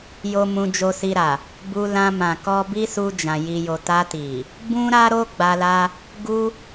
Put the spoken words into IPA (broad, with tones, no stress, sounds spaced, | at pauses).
j o˦ m ũ˧ d͡ʒ o˧ s i˧ ɾ a˨ | b u˧ l ã˧ m ã˨ k ɔ˧ b i˦ s u˧ d͡ʒ ã˨ j i˨ j o˨ t a˧ t i˨ | b ũ˦ ɾ a˦ ɾ o˦ ɡ͡b a˧ l a˦ | ɡ u˦